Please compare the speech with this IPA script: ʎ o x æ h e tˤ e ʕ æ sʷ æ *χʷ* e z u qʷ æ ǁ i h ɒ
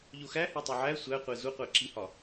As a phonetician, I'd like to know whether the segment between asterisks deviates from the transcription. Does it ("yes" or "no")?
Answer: yes